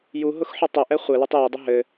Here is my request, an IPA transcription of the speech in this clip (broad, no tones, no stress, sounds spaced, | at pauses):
j u ɦ ʊ x ħ ʊ tˤ ɘ ʔ ɛ χʷ ɘ l u tˤ j e dˤ ə ɦ ɘ